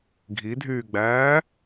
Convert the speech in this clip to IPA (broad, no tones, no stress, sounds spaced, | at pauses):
ɡʱ i dʱ yː ɡ͡b æː